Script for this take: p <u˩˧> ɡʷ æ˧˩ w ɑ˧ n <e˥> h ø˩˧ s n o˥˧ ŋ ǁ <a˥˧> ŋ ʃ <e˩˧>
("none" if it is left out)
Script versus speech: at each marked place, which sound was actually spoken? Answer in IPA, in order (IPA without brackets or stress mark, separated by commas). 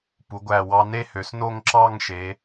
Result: u˩˧, e˥, ɑ˥˧, e˩˧